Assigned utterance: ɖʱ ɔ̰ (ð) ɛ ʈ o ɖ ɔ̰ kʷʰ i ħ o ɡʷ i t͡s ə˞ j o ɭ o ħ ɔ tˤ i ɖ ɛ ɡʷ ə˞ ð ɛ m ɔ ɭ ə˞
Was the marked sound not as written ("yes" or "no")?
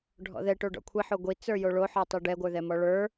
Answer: no